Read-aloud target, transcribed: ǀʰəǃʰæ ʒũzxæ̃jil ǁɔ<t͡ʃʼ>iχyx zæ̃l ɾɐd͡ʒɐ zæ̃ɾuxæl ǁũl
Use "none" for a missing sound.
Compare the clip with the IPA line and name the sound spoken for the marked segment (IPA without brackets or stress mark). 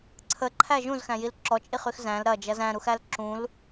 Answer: t͡ʃʼ